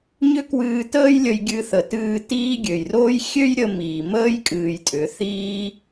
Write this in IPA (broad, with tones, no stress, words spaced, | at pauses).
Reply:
ɲʏ˦kwɨː˧təː˦j lʲə˧jɡʲɨ˧ θə˨tɨː˧ tiː˦ ɡʲø˨jroː˦j xʲø˦j ɾʲə˦ miː˨məː˦j kʼɨː˧jtʼʏ˨˦ θiː˦